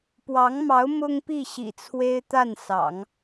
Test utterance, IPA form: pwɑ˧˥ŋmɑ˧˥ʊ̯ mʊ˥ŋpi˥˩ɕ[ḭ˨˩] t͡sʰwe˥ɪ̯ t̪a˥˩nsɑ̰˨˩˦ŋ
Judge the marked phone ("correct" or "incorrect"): correct